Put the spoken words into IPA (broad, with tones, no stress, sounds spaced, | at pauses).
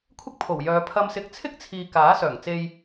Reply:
kʷʰ ɪ˥ k̚ pʰ o˨˩ w j œː˨˧ pʰ ɐ˧ m s ɪ˧ k̚ t͡sʰ ɪ˥ k̚ t͡sʰ iː˨ k aː˨˥ s œː˨˩ ŋ t͡s e˧ j